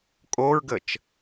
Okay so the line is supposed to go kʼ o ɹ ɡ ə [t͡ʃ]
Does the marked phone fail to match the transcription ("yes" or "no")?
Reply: no